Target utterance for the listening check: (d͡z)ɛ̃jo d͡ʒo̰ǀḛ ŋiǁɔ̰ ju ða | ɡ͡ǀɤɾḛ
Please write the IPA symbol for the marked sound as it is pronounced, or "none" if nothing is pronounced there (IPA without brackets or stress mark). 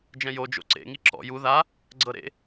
d͡ʒ